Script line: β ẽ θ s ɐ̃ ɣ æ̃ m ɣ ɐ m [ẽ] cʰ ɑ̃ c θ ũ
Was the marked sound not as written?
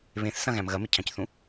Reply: yes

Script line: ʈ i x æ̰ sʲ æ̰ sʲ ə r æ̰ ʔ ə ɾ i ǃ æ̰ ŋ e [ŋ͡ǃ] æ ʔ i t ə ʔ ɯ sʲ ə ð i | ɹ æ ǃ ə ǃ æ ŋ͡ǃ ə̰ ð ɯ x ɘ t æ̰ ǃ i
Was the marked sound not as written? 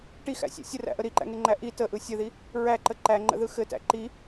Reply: no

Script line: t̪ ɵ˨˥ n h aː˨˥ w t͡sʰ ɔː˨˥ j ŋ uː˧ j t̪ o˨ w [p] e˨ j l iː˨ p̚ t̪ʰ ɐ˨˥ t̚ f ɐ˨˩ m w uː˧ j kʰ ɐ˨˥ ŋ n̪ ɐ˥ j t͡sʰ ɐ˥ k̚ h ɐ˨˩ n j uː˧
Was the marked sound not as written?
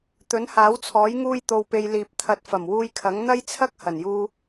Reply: no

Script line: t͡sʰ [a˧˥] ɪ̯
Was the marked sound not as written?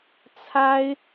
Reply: yes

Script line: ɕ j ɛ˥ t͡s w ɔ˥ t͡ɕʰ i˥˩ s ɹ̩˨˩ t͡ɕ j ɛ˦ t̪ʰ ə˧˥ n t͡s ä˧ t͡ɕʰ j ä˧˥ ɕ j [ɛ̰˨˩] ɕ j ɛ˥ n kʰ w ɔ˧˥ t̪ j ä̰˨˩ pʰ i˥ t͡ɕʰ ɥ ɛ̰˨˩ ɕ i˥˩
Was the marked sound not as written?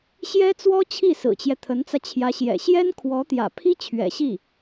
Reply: no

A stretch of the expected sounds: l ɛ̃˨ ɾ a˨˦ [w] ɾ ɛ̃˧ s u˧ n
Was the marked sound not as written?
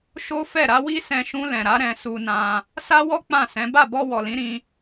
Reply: yes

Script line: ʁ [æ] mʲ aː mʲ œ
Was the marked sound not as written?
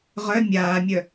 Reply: yes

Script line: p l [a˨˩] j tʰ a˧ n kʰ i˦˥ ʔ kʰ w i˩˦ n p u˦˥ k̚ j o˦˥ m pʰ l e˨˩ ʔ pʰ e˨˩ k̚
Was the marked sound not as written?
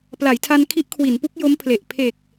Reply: yes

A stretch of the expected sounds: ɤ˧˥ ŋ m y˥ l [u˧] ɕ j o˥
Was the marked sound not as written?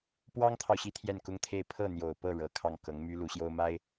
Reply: yes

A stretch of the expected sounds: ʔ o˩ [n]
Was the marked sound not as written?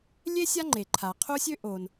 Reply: no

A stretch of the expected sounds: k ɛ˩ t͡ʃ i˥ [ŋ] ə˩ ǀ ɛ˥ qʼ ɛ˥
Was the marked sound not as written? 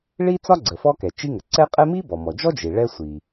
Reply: no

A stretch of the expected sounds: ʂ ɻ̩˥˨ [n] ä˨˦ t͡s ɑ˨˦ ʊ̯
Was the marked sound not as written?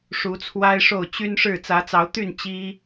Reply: yes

